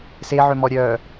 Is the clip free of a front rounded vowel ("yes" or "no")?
no